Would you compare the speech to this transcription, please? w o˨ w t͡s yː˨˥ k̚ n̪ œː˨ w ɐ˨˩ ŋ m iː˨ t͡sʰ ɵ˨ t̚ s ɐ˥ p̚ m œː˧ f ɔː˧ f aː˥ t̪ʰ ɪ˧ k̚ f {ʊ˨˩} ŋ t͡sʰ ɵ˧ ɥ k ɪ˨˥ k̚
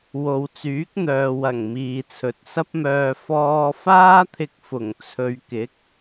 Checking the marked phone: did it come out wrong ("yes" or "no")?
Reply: no